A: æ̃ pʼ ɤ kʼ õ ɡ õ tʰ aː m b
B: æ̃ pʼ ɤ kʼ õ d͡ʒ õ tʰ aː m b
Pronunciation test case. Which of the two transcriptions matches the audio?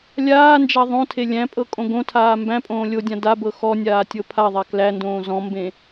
A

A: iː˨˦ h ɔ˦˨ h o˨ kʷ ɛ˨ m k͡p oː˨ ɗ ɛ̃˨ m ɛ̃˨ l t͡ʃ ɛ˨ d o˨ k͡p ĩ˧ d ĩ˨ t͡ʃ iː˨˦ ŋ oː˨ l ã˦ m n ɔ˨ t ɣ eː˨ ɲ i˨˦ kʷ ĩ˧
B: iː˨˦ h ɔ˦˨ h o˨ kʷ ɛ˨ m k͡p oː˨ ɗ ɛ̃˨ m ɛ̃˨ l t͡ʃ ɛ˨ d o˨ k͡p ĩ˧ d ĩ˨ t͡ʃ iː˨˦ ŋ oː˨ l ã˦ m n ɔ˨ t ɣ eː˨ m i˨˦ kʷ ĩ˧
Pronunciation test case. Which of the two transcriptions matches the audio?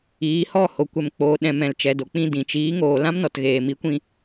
B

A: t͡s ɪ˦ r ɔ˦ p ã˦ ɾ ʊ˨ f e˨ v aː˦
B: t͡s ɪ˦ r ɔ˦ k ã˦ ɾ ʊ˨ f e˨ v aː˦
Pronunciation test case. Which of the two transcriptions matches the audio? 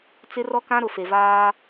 B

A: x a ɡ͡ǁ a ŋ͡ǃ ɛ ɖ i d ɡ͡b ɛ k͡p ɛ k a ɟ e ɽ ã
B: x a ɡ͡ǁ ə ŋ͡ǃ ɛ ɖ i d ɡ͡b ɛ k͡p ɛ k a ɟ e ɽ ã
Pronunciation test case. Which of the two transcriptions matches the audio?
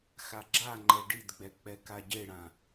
A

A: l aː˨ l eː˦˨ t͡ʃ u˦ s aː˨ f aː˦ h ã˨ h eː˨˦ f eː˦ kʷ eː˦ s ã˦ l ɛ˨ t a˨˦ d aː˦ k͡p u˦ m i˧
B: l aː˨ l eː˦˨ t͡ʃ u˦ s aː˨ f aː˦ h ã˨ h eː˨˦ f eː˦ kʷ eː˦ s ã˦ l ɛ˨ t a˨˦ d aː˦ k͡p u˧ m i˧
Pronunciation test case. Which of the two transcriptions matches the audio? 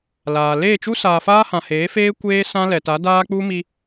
A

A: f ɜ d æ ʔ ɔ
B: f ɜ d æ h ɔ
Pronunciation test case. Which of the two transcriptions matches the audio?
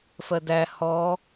B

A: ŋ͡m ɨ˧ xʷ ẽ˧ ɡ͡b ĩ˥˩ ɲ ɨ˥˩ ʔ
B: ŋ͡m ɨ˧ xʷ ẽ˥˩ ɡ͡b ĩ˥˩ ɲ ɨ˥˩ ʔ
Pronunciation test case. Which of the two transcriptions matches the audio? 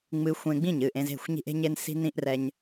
A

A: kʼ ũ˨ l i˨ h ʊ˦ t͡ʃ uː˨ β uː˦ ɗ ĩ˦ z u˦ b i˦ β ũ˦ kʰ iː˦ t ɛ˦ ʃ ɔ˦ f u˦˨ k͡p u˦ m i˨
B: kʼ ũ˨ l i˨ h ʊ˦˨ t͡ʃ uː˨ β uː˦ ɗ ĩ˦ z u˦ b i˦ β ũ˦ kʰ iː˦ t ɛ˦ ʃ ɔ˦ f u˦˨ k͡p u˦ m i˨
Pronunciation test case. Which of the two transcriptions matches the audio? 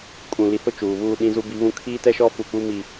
B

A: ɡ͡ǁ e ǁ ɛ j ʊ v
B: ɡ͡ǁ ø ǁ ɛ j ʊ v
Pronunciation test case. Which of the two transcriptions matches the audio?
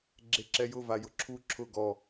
A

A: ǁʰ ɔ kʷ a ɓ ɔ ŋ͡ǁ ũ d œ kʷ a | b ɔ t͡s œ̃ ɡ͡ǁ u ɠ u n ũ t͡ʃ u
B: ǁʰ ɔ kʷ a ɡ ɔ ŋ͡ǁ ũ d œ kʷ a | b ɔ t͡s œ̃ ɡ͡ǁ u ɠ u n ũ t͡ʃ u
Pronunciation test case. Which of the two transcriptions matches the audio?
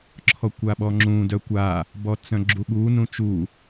A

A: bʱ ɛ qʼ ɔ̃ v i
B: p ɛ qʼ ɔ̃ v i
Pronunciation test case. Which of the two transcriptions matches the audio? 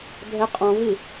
A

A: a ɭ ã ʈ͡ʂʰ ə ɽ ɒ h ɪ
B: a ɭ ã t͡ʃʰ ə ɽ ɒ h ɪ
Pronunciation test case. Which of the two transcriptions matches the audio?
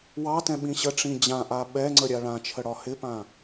B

